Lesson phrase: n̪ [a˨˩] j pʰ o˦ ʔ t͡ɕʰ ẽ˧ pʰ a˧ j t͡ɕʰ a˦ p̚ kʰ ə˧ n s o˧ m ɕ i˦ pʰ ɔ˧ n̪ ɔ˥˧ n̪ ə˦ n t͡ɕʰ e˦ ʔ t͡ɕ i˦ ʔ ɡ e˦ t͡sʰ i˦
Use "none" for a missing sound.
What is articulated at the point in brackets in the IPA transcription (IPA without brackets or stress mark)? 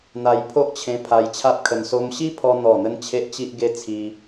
a˧